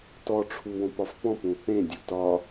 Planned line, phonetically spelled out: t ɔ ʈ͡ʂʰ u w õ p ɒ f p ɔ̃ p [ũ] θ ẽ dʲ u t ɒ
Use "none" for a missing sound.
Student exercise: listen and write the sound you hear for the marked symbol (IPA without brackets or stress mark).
ũ